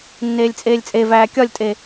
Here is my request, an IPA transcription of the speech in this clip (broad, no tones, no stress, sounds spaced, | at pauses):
nː eː lʲ t͡sʼ eː lʲ t͡sʼ e v æː kʲ ɒ lʲ tʼ e